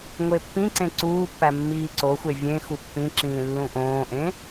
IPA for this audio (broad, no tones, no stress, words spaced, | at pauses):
ŋʷepːĩǀẽ ǀuːpːæ mːiːǀoxʷe vʲẽ xupːĩǁĩː lːũʔõːʔẽ